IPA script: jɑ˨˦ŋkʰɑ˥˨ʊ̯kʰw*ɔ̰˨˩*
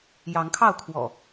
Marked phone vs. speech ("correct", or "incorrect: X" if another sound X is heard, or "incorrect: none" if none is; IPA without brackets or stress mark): correct